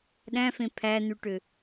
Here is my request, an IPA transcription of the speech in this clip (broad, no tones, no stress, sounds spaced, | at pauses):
ɗ æ̃ f ẽ pʰ æ n̪ ʉ ʈ ø